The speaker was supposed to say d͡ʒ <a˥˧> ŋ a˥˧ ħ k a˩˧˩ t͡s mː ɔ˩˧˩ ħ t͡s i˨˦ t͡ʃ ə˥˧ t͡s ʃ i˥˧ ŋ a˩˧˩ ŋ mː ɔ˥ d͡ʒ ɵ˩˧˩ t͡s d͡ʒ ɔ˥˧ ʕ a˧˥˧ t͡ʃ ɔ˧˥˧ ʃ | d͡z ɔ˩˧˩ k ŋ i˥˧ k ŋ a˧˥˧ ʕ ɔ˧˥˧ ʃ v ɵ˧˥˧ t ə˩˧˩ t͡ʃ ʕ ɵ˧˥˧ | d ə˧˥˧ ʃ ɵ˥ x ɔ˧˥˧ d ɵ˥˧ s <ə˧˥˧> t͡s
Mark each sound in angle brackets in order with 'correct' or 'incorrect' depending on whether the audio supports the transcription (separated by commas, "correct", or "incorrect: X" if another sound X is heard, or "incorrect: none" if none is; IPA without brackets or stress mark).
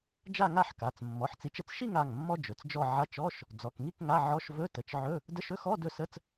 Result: correct, correct